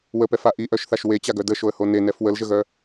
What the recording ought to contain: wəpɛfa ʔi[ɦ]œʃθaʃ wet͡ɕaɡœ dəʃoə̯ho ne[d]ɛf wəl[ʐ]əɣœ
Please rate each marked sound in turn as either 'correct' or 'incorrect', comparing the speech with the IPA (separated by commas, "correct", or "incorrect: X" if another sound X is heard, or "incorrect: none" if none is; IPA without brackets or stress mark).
incorrect: ʔ, incorrect: n, incorrect: ʒ